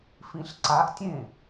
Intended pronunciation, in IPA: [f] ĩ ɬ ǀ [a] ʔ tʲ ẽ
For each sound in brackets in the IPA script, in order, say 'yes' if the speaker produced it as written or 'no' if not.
yes, yes

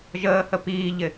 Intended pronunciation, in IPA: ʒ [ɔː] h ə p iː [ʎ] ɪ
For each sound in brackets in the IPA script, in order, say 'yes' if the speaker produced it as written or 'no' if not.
no, yes

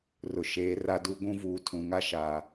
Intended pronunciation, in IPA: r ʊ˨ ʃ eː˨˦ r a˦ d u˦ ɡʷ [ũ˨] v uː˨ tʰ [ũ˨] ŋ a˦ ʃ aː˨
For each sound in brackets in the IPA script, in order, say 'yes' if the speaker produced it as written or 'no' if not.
no, yes

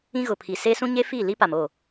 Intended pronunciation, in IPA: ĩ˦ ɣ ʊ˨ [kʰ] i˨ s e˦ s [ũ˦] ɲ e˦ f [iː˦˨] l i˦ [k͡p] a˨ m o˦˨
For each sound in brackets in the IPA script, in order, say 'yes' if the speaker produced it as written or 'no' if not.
no, yes, yes, no

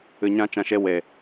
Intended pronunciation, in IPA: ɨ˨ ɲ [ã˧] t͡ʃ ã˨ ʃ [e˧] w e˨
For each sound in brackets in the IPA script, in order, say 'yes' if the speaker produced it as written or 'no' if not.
yes, yes

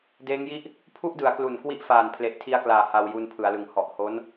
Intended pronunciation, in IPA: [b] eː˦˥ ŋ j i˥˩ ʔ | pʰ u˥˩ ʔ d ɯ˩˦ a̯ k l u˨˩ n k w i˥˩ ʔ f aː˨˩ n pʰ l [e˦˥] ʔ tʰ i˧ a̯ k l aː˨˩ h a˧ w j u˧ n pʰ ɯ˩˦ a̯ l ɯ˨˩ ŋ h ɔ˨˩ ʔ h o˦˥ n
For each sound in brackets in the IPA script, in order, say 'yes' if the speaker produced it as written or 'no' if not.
no, no

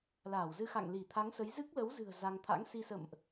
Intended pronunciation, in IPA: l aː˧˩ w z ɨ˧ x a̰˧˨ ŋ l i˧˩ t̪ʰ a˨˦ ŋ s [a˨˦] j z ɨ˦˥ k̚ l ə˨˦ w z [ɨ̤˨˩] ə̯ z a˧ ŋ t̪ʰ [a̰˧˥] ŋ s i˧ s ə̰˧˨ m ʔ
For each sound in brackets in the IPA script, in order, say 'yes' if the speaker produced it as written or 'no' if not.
no, yes, yes

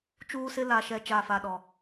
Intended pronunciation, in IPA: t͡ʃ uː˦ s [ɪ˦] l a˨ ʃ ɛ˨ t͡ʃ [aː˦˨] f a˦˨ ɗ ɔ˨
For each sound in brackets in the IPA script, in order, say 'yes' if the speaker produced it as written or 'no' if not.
yes, no

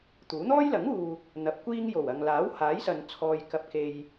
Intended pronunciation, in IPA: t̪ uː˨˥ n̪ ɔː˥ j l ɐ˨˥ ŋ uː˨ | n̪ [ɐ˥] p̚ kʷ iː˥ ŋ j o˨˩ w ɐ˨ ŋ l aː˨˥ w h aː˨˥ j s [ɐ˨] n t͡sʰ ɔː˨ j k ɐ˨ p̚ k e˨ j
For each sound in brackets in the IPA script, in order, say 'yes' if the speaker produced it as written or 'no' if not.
no, yes

